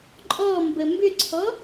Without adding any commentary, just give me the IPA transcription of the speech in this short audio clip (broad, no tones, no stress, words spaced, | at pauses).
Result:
ǃʼɔmbə mbʏǀʰɔ